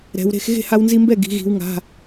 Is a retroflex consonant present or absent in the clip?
absent